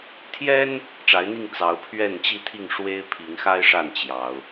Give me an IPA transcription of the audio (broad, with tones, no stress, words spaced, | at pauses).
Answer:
t̪ʰjɛ˦n | ʈ͡ʂa˨˦ɪ̯n̪i˥˨ŋ t͡sɑ˨˦ʊ̯pʰɥɛ˥˨n t͡ɕi˥˨t̪ʰi˥˨ŋ ʂwe˦ɪ̯pʰi˨˦ŋxa˦ɪ̯ʂa˥˨n t͡ɕjɑ˨˦ʊ̯